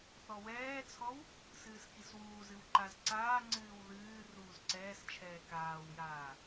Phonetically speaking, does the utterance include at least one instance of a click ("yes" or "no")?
yes